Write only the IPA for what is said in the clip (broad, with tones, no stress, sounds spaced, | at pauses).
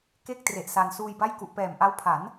k e˥˩ k̚ t r e˨˩ ʔ s a˧ n s uː˧ j b a˥˩ j k u˨˩ ʔ p ɛː˨˩ m ʔ a˦˥ w pʰ a˩˦ n